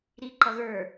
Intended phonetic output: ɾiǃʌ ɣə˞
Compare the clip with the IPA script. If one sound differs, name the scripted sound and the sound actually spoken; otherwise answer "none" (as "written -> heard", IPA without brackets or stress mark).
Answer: none